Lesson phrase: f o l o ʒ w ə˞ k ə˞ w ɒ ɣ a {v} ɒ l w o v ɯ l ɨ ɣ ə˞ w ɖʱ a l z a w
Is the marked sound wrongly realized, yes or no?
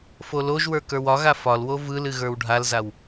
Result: yes